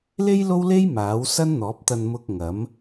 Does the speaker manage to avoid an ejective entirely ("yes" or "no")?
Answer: yes